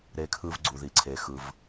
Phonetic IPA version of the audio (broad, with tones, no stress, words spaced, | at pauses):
ɾe˧kʰɯ˧vɡ͡ǀu˨ði˨ ǀʰe˨ xɯ˧v